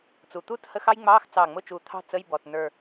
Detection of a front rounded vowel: absent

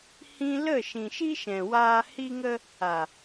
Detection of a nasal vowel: present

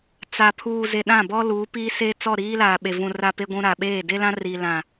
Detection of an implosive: present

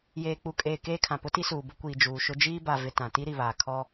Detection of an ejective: present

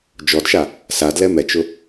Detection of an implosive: absent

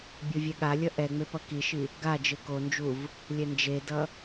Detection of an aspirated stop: absent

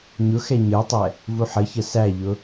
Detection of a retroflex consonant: absent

